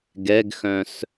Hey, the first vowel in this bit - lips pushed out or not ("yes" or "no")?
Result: no